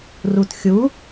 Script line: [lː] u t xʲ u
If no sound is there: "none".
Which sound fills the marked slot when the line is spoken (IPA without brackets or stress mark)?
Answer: r